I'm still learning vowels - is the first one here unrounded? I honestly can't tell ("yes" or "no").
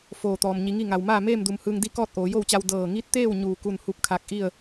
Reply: no